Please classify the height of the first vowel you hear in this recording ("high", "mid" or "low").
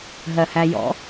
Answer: mid